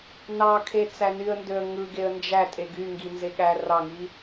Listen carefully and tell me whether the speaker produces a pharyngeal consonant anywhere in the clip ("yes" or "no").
no